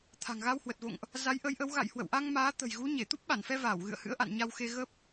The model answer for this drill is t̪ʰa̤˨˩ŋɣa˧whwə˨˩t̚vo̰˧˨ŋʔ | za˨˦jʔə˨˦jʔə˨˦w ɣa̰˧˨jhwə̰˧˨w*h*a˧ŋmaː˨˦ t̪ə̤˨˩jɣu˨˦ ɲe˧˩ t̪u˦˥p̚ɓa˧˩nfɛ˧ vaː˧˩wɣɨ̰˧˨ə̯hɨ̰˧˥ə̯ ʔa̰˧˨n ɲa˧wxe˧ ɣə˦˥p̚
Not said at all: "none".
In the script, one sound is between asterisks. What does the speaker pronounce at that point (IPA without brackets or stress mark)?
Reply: ʔ